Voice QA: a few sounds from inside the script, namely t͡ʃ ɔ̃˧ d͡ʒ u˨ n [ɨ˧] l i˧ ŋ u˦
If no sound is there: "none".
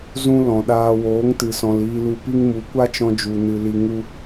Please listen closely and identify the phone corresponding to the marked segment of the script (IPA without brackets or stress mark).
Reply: ɨ˨